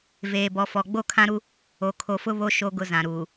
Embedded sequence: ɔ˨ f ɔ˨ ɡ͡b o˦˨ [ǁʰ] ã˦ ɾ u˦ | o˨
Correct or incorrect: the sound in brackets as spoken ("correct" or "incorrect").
incorrect